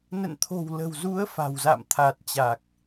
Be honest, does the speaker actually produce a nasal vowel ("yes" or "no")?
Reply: no